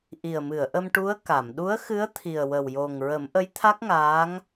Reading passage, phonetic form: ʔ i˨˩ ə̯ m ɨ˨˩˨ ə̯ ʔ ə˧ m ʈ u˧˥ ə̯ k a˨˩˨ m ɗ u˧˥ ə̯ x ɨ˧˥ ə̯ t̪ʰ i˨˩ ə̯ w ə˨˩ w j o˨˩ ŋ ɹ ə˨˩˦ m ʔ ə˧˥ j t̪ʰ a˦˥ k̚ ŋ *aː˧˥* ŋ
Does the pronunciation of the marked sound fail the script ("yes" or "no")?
no